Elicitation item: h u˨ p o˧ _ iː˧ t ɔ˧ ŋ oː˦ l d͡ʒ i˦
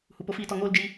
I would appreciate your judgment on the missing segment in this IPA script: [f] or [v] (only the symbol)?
f